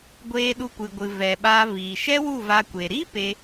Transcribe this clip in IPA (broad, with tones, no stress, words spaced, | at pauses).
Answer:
ɡʷeː˧ɗu˧kʷɨ˨ɡʷɨ˨ vɛ˨ɓaː˧viː˨ ʃɛ˦wu˦˨ va˧kʷe˨ ɾi˦ pe˦